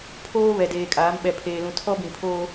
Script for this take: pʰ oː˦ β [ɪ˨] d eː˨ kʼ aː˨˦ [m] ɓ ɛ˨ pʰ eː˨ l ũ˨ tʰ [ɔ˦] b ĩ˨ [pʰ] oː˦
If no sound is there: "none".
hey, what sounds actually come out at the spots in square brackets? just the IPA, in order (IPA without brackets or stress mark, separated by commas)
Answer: ɛ˨, m, ɔ˦, pʰ